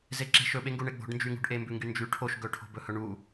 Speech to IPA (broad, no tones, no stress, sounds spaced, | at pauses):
z e ǁ e̤ ʃ ɵ ɓ e ŋ ɡ u ɳ e ɡ͡b o̤ ɖ n d͡ʒ y ŋ ṳ ɖ ʔ e m b ʉ ŋ ɡ y n d͡ʒ y ʈʰ o ʃ ɡ ɵ ʈʰ o̤ b ɵ h ɵ ɳ u